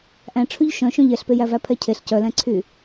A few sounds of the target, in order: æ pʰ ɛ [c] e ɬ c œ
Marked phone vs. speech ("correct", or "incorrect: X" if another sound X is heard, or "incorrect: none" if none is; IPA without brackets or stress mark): incorrect: cʰ